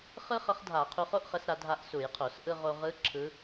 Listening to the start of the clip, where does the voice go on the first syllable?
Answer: high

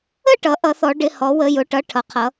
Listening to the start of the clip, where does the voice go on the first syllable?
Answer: falling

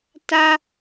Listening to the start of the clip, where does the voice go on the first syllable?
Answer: high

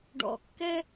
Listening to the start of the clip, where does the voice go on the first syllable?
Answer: low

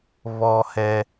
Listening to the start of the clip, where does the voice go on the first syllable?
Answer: high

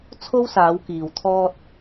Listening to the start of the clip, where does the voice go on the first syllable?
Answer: high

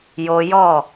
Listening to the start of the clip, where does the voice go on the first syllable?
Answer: high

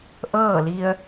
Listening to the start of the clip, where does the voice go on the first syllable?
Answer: falling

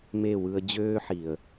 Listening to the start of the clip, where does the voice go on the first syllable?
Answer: falling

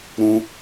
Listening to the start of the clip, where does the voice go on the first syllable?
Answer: high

